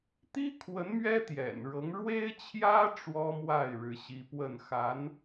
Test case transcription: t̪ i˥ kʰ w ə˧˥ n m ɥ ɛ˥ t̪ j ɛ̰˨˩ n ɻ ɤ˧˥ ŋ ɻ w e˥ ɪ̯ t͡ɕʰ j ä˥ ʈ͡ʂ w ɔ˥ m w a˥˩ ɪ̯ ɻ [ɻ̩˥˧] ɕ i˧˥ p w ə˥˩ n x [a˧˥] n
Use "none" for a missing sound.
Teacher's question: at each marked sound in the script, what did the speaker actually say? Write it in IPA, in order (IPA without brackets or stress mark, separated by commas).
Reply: ɻ̩˧˥, a˧˥